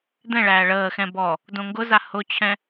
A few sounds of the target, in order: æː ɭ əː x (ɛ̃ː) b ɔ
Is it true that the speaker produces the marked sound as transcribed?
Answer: no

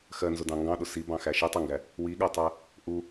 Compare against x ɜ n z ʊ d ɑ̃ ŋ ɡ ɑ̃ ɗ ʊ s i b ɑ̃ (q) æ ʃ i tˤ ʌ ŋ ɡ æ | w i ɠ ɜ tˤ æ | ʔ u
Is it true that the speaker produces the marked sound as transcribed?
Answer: no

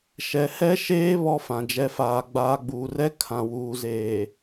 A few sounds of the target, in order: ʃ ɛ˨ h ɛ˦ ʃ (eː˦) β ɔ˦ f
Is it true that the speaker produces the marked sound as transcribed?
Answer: yes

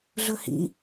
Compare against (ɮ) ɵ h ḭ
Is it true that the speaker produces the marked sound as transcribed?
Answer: yes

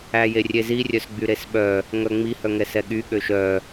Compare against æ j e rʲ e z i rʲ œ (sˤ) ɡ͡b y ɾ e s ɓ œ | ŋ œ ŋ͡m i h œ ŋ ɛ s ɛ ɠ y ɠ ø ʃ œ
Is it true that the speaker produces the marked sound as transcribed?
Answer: no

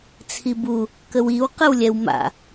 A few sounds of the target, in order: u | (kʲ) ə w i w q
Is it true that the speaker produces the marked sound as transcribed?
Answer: no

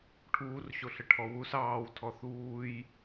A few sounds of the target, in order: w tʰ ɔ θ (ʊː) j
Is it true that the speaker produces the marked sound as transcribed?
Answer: no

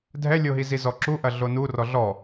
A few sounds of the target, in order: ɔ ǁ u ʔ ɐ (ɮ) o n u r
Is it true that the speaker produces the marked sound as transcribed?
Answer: yes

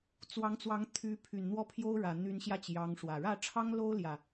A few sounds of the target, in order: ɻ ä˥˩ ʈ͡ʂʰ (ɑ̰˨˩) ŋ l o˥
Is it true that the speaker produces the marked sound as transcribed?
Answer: no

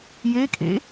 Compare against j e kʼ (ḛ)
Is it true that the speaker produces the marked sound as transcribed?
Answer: yes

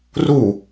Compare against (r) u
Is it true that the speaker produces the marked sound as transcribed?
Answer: yes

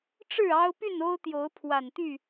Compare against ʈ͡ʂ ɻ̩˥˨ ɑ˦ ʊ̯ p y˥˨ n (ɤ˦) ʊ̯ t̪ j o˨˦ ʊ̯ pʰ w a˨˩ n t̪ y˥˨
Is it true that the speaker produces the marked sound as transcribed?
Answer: no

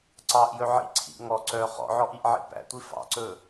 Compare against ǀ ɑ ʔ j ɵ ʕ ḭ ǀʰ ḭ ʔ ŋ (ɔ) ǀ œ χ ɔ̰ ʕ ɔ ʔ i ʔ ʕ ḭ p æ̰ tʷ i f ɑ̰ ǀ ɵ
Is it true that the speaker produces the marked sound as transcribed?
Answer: yes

